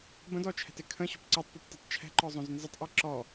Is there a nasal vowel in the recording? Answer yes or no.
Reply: yes